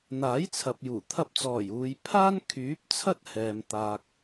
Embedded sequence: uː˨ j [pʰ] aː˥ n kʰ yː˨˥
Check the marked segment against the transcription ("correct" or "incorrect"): correct